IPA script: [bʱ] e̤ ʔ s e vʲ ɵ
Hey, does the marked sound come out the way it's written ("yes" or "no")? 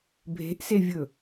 yes